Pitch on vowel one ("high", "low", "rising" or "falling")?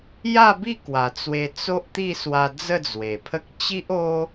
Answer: falling